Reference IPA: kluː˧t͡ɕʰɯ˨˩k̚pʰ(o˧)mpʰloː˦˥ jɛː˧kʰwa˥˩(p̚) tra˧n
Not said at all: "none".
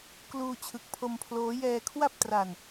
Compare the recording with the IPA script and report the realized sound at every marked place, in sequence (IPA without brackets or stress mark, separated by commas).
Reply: o˧, p̚